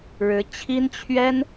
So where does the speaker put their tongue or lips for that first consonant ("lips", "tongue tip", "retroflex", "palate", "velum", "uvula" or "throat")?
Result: retroflex